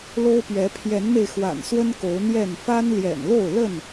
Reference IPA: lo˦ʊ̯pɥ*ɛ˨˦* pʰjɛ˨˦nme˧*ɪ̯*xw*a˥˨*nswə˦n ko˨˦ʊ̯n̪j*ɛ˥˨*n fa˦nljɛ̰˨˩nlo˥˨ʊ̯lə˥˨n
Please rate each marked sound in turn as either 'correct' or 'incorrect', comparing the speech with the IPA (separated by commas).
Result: correct, correct, incorrect, correct